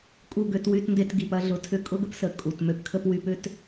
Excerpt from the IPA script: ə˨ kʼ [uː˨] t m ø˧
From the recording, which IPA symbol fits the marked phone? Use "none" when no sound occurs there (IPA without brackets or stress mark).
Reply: u˨